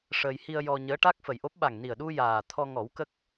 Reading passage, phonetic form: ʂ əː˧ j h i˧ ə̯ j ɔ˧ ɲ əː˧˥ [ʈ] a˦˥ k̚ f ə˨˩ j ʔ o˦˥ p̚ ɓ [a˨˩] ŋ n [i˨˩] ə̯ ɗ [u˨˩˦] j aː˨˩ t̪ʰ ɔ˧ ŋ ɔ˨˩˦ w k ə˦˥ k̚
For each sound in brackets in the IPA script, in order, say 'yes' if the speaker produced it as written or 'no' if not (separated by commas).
yes, yes, yes, no